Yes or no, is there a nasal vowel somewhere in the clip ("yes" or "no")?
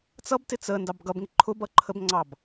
no